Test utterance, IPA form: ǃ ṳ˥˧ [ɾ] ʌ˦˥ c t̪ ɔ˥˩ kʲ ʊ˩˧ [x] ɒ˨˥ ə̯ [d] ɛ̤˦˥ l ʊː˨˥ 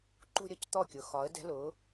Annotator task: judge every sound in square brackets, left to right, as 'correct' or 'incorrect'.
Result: incorrect: ɾʲ, correct, correct

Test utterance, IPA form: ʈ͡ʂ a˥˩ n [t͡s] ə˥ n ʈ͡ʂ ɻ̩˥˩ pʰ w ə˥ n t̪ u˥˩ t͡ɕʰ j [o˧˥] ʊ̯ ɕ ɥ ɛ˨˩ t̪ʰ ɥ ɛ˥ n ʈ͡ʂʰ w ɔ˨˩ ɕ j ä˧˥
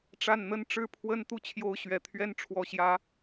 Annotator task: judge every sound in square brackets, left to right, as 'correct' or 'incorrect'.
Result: incorrect: n̪, correct

